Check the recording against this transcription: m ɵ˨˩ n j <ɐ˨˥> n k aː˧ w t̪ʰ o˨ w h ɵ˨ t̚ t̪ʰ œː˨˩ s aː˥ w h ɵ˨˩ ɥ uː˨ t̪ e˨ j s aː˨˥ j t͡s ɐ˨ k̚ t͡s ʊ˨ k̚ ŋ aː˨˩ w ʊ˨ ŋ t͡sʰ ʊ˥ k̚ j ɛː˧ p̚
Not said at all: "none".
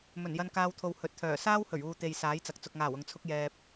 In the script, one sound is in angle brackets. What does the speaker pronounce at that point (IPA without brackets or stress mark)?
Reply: ɐ˧